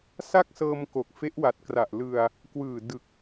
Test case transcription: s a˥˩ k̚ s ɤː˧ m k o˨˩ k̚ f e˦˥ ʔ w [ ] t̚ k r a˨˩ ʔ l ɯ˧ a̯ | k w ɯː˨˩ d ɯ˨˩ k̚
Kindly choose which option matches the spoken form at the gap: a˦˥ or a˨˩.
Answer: a˨˩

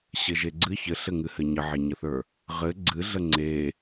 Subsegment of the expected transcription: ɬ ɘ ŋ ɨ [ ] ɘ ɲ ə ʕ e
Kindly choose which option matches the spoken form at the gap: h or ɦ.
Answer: h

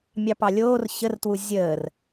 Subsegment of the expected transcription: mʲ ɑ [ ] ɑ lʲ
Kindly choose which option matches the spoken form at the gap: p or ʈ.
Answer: p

